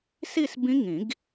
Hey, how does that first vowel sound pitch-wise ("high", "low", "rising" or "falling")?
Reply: falling